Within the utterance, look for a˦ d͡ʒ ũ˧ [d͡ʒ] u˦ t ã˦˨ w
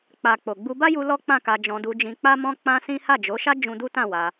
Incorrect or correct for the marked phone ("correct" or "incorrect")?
incorrect